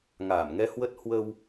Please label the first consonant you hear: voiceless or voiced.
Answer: voiced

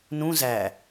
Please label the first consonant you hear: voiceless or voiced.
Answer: voiced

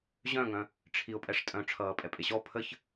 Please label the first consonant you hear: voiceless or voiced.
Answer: voiced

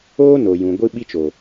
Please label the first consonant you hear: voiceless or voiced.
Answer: voiced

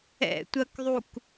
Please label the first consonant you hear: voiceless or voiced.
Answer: voiceless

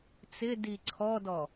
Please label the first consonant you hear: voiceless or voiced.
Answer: voiceless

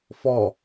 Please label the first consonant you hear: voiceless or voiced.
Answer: voiceless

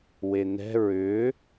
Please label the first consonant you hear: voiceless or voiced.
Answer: voiced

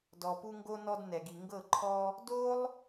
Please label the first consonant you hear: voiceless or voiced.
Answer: voiced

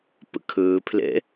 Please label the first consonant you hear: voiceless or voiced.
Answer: voiceless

